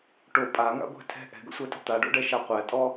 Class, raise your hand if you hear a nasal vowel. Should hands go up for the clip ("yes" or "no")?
no